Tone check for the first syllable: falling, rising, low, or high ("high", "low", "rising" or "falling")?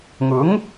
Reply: rising